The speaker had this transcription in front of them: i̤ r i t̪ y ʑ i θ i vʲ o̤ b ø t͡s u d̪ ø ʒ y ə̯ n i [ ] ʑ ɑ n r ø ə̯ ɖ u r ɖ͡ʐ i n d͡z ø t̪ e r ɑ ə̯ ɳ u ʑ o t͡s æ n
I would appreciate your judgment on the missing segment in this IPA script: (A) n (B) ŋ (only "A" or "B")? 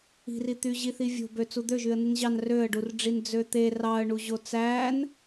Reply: A